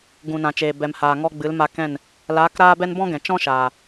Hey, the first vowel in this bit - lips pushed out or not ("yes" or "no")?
yes